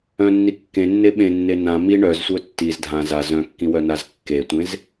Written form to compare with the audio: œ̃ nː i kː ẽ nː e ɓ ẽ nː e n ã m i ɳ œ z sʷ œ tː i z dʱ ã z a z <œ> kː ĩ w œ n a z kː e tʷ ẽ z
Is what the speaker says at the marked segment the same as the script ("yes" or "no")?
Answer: no